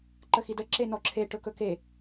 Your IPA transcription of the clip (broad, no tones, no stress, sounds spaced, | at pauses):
ǃ ə x i d ə ǁ e n ɔ ǁʰ e ʈ ɵ k ɵ k e